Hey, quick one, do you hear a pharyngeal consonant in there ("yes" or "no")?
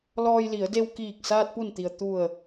no